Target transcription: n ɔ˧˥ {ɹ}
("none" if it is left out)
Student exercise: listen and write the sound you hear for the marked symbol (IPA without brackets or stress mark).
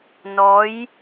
j